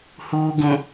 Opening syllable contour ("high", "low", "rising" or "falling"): low